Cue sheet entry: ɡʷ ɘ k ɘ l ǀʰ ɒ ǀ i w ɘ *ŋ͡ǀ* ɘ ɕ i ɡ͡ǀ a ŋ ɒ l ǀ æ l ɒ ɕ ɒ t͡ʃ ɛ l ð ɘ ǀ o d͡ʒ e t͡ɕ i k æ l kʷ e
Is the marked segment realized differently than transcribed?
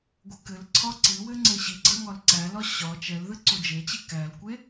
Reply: no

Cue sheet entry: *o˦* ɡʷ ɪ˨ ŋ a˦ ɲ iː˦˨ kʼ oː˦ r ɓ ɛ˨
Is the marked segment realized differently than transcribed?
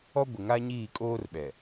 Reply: yes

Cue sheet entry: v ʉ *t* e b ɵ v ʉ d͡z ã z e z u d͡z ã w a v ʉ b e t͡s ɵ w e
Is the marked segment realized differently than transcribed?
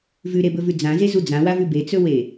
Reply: yes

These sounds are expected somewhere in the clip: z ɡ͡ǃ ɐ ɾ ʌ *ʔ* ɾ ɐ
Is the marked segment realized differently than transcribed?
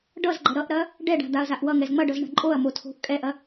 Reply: no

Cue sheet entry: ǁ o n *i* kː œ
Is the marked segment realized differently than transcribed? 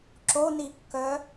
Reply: no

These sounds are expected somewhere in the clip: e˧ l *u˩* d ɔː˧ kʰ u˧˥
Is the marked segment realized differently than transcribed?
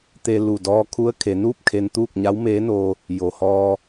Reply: yes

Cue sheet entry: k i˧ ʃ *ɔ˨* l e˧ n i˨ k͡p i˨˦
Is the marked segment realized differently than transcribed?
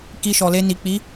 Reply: no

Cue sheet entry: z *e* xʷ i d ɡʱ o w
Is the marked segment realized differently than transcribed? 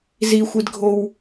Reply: yes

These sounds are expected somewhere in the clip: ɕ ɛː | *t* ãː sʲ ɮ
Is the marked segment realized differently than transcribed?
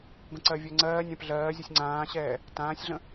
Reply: no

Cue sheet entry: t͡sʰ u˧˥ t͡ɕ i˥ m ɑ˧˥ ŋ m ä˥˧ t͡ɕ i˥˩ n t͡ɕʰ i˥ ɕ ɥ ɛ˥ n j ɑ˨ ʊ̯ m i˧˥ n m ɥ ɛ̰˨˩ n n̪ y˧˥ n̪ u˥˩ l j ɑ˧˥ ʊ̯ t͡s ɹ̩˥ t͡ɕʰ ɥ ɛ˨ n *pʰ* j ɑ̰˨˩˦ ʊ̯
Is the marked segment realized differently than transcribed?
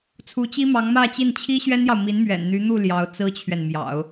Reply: yes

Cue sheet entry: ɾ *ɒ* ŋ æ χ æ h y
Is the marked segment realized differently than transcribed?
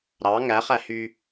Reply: yes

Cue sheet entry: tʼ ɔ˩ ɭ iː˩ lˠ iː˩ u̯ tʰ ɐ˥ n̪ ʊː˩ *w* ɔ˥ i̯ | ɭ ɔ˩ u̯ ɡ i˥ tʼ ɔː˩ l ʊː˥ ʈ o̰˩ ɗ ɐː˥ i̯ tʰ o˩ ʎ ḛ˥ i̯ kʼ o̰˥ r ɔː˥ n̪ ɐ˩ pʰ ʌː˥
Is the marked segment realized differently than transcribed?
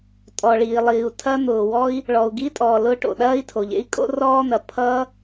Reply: no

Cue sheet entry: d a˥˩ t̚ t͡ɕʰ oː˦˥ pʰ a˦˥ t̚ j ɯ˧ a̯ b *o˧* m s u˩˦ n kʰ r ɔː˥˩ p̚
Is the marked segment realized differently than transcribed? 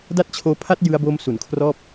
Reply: no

